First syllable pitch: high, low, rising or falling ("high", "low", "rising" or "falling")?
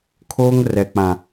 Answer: high